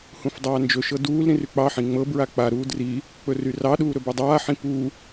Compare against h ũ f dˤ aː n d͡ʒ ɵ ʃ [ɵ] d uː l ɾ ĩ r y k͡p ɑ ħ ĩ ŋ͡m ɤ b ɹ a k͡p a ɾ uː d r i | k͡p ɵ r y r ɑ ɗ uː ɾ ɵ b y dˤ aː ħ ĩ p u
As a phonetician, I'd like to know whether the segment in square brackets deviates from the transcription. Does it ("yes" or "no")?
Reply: yes